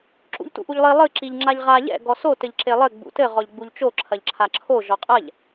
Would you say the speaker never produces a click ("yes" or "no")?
no